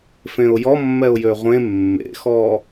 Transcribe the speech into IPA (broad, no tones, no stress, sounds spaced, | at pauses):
f ẽ ʊ̯ j ɔ mː ɛ ʊ̯ j ø ʁʷ ẽ mː ḛ x ɔ